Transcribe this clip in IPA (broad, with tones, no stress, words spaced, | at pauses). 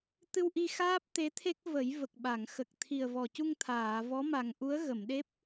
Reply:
t̪ɨ˧wʔi˧xaː˦˥p̚ t̪e˧˥t̪ʰe˦˥k̚ və˨˩˦jvə˨˩k̚ɓa˨˩˨ŋ xə˨˩k̚t̪ʰi˨˩ə̯ vɔ˨˩cu˧ŋ t̪ʰaː˨˩˨ vɔ˧˥ma˨˩ŋʔu˧˥ə̯ ɣə˨˩˨mɗe˦˥p̚